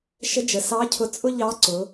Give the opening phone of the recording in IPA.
ʃ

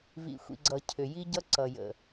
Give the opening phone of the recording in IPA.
v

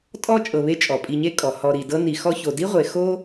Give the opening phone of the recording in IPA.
tʼ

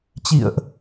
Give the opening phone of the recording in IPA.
t͡ɕ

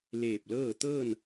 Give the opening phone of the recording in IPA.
l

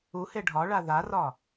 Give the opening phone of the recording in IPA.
u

